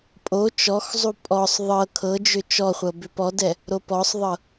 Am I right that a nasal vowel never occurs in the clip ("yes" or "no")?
yes